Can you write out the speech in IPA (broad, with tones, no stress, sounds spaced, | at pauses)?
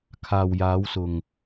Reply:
kʰ aː˨ w j aː˨˧ w s ʊ˨ ŋ